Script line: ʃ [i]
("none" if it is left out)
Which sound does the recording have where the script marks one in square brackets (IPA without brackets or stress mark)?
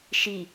i